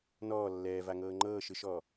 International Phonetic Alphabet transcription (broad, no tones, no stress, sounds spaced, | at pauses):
n ɔː lː ɛː v a ŋ ɤː ŋ͡ǃ ɤː ʃ ɯ ʃ ɔː